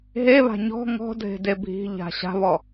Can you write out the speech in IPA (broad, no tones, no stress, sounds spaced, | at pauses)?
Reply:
ɦ e β a̤ ɲ ɔ̤ ŋ ɔ̤ dʱ e̤ d e bʱ i̤ ʎ a̤ ɕ a̤ β ɔ